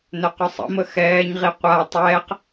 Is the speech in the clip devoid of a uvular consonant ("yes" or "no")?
no